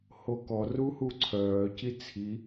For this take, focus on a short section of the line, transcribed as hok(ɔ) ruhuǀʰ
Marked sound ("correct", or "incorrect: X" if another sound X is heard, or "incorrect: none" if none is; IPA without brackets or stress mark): correct